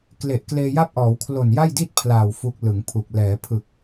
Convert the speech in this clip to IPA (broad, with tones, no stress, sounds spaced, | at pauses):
k l e˨˩ ʔ k l eː˧ j a˥˩ p̚ ʔ ɔː˩˦ w kʰ l o˨˩ n j a˥˩ j d i˥˩ t̚ pʰ l aː˨˩ w f u˦˥ k̚ l ɯ˩˦ ŋ pʰ u˨˩ k̚ l ɛː˩˦ pʰ ɯ˨˩ k̚